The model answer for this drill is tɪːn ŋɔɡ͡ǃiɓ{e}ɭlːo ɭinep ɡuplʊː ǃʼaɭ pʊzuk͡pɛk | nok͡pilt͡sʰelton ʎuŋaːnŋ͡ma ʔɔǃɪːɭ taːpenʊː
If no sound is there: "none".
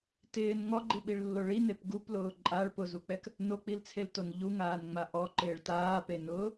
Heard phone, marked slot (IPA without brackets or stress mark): i